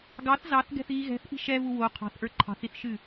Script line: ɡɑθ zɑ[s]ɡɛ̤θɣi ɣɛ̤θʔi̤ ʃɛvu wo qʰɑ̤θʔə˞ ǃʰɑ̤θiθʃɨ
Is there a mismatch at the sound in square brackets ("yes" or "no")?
yes